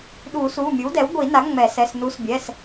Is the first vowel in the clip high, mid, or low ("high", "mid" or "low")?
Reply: high